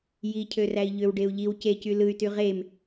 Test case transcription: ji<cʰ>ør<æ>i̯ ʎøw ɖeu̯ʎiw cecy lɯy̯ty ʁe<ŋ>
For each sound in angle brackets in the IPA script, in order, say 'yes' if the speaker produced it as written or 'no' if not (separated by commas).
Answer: yes, yes, no